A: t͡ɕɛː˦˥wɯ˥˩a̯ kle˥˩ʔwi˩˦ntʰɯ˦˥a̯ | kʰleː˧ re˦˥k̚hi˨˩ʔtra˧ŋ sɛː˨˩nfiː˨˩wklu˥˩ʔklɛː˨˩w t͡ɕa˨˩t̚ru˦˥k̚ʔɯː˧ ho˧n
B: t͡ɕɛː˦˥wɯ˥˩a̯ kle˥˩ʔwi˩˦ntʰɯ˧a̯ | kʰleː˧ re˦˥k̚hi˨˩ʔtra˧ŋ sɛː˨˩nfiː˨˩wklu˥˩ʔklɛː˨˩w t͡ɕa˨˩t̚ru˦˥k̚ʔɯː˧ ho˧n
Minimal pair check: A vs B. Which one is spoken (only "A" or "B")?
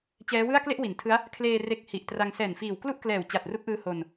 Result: A